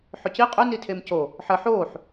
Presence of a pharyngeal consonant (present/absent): present